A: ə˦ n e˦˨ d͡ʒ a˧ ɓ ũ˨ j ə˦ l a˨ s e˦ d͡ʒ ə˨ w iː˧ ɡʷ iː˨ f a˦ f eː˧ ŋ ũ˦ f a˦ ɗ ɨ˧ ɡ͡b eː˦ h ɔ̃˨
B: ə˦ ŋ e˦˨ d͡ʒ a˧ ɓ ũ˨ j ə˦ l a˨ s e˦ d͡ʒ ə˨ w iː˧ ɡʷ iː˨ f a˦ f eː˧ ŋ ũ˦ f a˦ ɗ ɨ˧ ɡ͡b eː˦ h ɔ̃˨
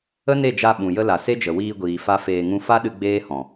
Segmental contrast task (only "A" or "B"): A